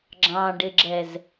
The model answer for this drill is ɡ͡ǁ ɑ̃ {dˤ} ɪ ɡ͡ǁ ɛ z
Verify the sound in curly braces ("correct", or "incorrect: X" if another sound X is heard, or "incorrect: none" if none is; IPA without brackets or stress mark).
incorrect: ɖ